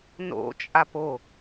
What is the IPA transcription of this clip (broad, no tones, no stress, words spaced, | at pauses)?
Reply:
no̰t͡ʃʼap o